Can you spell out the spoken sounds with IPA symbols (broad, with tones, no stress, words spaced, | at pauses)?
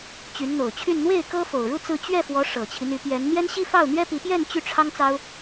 t͡ɕy˧˥nn̪o˨˩ʊ̯t͡ɕʰy˥˧n n̪we˥˩ɪ̯ kɤ˥fo˨˩ʊ̯ɻu˥˧ t͡sɹ̩˥˧ t͡ɕɥɛ˥˩fwɔ˧˥ ʂɤ˨˩t͡ɕʰi˦n̪y˧˥pjɛ˧˥n n̪jɛ˥nɕi˥˧fɑ˥˩ʊ̯n̪ɥɛ˥ pi˧˥pjɛ˥˧n t͡ɕy˥˩ʈ͡ʂʰɑ˥ŋt͡sɑ˥ʊ̯